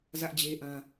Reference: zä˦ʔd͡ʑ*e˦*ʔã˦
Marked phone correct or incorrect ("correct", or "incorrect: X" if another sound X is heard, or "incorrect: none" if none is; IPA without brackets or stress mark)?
correct